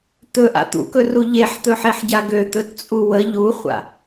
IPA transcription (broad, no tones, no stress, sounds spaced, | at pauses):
t̪ ɵ ʔ a̰ t̪ ṵ k ɵ r u ʎ e ħ t̪ ɵ ħ e ħ ɟ a ɡ ø t̪ ɵ t t͡sʼ u w ə ʎ u χʷ a̰